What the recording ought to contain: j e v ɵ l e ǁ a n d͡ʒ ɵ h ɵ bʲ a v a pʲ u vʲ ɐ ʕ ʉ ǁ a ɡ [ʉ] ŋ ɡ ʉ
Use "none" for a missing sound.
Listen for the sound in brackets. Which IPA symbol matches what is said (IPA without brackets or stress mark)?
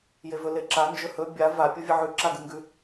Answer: ɨ